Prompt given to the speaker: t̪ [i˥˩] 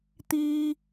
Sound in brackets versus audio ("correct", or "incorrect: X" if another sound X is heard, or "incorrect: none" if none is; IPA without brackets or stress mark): incorrect: i˥